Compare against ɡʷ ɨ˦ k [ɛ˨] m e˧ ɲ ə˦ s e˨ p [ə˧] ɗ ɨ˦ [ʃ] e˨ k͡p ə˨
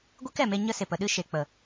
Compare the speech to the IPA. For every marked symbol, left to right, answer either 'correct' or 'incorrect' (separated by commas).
correct, correct, correct